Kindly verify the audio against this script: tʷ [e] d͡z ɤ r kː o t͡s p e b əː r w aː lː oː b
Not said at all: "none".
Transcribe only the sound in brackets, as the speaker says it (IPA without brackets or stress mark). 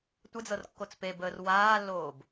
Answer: ɘ